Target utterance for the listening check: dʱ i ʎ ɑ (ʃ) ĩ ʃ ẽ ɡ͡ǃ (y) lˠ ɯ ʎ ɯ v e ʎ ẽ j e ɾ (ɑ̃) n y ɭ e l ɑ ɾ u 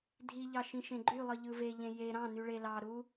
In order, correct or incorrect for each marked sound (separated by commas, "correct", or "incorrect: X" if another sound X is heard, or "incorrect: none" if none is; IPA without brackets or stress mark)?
correct, correct, correct